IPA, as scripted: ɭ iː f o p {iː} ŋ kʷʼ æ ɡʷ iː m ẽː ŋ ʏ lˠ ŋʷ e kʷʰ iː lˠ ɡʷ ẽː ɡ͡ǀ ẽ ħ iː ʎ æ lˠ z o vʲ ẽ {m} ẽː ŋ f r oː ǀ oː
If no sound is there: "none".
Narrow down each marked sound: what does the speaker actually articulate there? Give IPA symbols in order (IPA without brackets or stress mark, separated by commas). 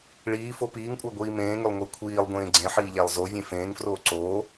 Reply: iː, f